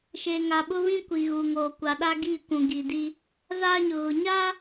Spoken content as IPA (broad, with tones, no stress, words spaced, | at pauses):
ʃe˨ŋa˨ɓʊ˦βĩ˦ kʷi˨ɣu˨ŋoː˨ kʷa˨ɗa˦ɡi˦˨ kʷũ˨ ɡiː˨di˦ | zaː˦ɲʊ˨ɣʊ˨ ɲa˦